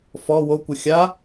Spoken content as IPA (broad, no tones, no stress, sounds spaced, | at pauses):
f ɔ w o kʷ ɨ xʲ a